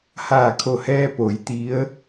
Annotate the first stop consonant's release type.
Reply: aspirated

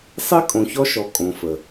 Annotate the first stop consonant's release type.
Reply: ejective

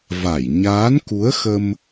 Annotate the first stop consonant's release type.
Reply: plain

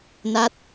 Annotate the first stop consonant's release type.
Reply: plain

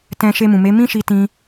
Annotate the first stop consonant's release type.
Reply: plain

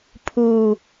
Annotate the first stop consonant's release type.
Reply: aspirated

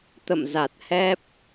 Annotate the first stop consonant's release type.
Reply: plain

